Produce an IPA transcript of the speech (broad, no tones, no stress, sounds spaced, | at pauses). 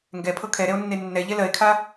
ŋ ɡ ɛ pʰ ɤ kʰ ɛ ɾ ɛ o̯ nː e nː ɛ ʎ ɛ l ɜ e̯ kʰ a